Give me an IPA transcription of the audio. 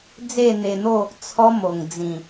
d͡z e˥˧ n̪ e˧ n̪ o˥˧ | t͡sʰ ɔ˦ m o˨˩ ŋ d͡z ĩ˨˩

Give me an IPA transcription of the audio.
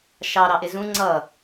ʃ ɑ ɾ ɑ ʔ ɪ z ũ ŋ͡ǀ ʌ

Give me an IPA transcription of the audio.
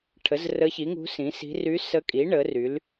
ʈʰ ə˩˥ z r ə˧˥ ç i˩˥ ŋ ṳ˧˥ s ĩ˩˥ s i̤˧˥ r y˧˥ s ə˧˥ kʼ i˩˥ ɳ ə˩˥ r y˩˥ l

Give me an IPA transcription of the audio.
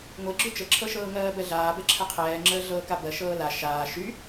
ŋʷ e ɡ͡ǁ y t͡ʃ ə ǁʰ ɤ ʃ ɤː ŋ ɜː b ɛ ɮ aː b ɛ ǁʰ ə qʰ ɛː ŋ͡ǁ əː ɮ ɤː k a b ɜ ʃ ɤː l a ʃ aː ʃ y

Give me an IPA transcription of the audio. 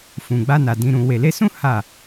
f ũ˨ ɡ͡b a˧ n a˨ d ĩ˨ ɾ ũ˨ w e˨ l e˧ s ũ˦ h a˦˨

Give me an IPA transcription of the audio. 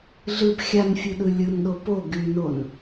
ɮ ɯ b xʲ a n fʲ ɯ ɗ ɯ lʲ ɯ n ɗ o p o ɡ y n o n

